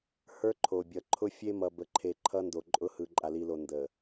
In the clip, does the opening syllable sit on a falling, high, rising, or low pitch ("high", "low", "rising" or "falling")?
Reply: high